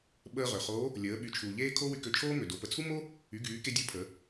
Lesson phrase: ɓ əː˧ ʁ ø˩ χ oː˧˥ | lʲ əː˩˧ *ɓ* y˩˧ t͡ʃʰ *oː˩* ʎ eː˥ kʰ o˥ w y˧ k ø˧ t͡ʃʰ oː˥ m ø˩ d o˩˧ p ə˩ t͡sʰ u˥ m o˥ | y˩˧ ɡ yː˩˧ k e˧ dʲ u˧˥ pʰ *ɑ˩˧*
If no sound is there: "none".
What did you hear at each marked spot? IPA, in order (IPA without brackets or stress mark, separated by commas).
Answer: ɓ, uː˩, ə˩˧